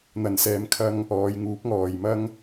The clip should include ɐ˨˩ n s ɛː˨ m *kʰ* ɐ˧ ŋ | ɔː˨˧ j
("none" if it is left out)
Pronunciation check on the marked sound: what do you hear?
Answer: kʰ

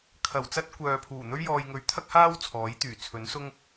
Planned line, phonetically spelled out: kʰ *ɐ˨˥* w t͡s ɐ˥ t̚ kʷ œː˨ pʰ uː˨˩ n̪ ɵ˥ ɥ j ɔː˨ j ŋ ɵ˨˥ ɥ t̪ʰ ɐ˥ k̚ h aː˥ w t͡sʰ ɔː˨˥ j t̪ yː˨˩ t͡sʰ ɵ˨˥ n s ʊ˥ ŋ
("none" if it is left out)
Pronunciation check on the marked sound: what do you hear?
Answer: ɐ˨˩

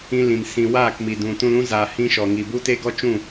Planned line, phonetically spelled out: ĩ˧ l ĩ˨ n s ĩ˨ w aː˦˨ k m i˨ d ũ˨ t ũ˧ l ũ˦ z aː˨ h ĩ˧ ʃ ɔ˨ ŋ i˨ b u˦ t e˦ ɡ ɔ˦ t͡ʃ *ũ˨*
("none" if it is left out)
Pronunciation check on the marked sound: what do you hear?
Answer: ũ˦˨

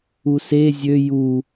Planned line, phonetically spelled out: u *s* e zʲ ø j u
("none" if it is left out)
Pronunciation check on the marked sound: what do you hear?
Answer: s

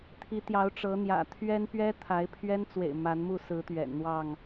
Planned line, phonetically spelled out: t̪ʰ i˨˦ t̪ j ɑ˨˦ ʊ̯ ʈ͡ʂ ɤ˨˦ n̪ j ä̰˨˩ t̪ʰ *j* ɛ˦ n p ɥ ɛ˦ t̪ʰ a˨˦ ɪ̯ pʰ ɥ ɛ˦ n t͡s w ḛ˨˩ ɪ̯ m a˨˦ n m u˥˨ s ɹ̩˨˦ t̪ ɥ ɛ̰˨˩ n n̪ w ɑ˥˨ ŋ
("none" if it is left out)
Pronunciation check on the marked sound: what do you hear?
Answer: ɥ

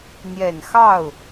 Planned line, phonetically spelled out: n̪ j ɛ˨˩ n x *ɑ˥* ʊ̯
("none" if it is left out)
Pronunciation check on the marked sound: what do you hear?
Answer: ɑ˥˩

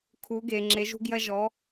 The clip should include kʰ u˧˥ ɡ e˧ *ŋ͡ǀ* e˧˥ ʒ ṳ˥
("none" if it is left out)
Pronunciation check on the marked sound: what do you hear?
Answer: ŋ͡ǁ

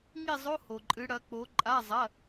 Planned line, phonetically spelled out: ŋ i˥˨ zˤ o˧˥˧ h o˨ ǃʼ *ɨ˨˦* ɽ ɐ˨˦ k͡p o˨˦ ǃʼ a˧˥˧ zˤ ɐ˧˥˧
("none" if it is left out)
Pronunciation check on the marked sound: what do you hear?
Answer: ɨ˨˦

